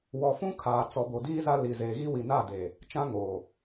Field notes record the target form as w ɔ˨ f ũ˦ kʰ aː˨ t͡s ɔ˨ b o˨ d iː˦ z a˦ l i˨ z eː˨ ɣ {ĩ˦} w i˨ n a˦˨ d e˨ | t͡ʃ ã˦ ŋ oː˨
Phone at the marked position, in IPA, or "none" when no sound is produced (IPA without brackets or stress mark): i˦